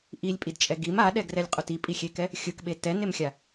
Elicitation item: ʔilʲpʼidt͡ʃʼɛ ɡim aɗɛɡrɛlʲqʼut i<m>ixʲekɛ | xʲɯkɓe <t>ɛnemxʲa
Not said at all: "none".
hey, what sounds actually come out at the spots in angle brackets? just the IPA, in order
pʼ, t

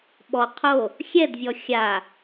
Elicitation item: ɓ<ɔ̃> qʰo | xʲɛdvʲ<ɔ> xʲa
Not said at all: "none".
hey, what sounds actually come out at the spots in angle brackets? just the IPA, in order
ɔ, ɔ

